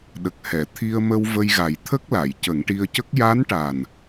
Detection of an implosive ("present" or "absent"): present